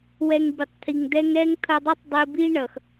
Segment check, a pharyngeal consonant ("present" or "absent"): absent